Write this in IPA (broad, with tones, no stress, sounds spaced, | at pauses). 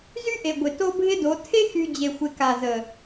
z y˦ ʔ e˨ ɡʷ ɪ˨ t o˦ bʱ ɪ˦ d o˨˦ tʰ e˦ x y˨ d͡ʑ e˨ xʷ ɪ˨ k a˨ z ə˨